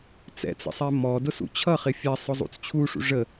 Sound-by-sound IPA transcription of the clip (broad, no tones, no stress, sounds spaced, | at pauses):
t͡s ɛ̰ t͡s ə̰ sˤ ɛ m ɔ d ʊ s ṵ t͡ɕʰ ʌ χ ɪ fʲ ɛ sˤ ʊ zˤ ṵ t͡s t͡ɕʰ u ʂ ṵ ʐ ə